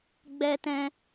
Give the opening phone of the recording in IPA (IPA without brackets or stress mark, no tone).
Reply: ɡ͡b